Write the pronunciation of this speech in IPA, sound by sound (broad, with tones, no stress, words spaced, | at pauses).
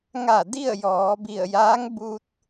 ŋa˧˩ di˥˨ə̯jɔː˩˧bi˧˩ə̯ jaː˧˥ŋ bu˧t̚